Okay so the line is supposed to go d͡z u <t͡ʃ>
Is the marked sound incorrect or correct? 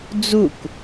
incorrect: k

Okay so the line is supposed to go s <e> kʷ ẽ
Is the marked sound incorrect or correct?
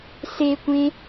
correct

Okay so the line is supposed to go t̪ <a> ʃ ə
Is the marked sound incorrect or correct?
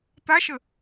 correct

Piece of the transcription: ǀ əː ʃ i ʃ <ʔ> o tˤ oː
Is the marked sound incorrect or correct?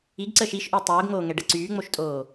correct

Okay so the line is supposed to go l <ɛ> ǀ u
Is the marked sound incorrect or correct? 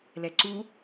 correct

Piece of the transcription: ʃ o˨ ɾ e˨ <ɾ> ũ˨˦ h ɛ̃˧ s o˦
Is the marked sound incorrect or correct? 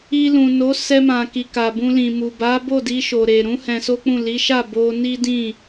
correct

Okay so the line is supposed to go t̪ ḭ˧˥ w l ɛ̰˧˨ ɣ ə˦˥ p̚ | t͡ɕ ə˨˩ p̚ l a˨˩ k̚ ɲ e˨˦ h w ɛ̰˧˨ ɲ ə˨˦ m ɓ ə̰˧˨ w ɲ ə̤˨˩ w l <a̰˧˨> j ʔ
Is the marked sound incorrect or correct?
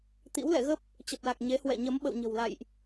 correct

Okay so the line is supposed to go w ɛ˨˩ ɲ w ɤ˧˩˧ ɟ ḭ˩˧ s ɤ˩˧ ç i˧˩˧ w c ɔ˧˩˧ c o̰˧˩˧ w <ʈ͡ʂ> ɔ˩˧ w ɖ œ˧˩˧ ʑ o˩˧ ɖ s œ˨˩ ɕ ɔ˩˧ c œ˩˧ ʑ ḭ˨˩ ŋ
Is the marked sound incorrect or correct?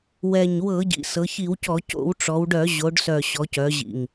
correct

